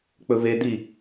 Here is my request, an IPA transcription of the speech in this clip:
k͡p ɵ v e d̪ i

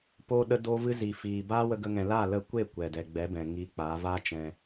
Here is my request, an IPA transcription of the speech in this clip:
p oː˧ ɗ ə˧ d oː˧ v ɨ˧ z iː˨ f iː˨ b aː˦ w ə˧ ɡ ə˧ ŋ ɛ̃˨ l a˦˨ l ə˧ kʷ e˦˨ kʷ ɛ˨ d ɛ˨ ɡ͡b ɛ˨˦ b ɛ̃˨ ŋ iː˧ k͡p aː˨˦ v aː˦ t͡ʃ ɛ̃˧

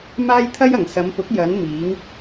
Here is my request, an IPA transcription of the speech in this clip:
m aː˥ j t̪ʰ ɐ˥ j ɐ˨˩ ŋ s ɐ˨˧ m p ʊ˨˥ k̚ j ɐ˨˧ n m iː˨˧ ŋ

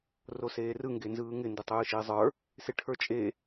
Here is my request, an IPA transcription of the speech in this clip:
r o s eː r ɯ ŋ ɡ e n z ɯː ŋ ɪ n d ɪ tˤ ɯː ʃ ɪː zˤ ə˞ | s ɪ ʈʰ ə˞ t͡ʃʼ e

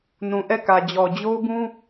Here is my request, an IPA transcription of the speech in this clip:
n ũ˨ ʔ ɛ˦˨ k ä˨ d͡ʑ ɔ˨ d͡ʑ o˦ ʊ̯ b ũ˦

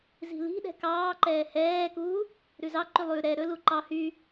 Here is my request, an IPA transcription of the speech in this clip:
z i̤ l i̤ ɗ ɛ̤ k ɑː ǃ ɛː h ɛː k uː | ɾ ʉ z ɑ ǃ y lˠ ʉ ɾ ɛ ɾ ɵ l u ǃ ɑ h y

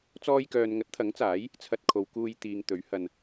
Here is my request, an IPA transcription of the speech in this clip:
t͡s ɔː˧ j k œː˨ n ŋ ɐ˨˥ t̚ t̪ʰ ɐ˨˥ ŋ t͡s aː˨˥ j | t͡sʰ ɐ˧ t̚ kʰ o˨˧ w k uː˧ j t̪ iː˨ ŋ t̪ ɵ˨˥ ɥ h ɐ˨ n

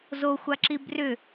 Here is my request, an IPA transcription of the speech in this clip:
z o xʷ a ǁ i b r ʏ

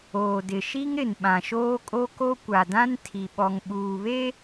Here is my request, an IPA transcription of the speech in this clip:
oː˨ d ɪ˨ ʃ i˦ ŋ ɾ ɪ˨ n ɓ ã˨ ʃ oː˦ kʼ o˦ k o˦ kʷ a˨ d ã˦ n tʰ i˨ ɓ ɔ˨ ŋ ɓ uː˨ β e˦

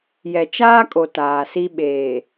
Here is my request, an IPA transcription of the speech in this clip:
j ɛ˨ t͡ʃ aː˦ kʼ o˨ t aː˨ s i˦ ɓ eː˨

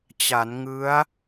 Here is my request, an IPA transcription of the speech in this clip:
t͡ɕ a˩˦ n ŋ ɯ˦˥ a̯

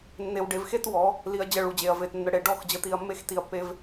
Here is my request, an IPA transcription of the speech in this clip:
nː e˨ w ɖ e˨ v x e˦ t w ɔ˨˦ | l i˨ ɐ̯ d͡ʑ ə˦˨ ɭ u˨ d͡ʑ e˨ ɐ̯ v e˨ t nː ə˨ ɽ e˨ ɖ ɔ˦˨ x d͡ʑ ə˨ t̪ i˨ ɐ̯ mː e˦ x t i˨ ɐ̯ pː e˦ v

